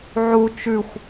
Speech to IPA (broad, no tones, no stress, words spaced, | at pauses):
ʕu t͡ʃʉxʷ